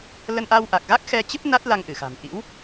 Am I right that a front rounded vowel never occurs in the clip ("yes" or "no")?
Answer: yes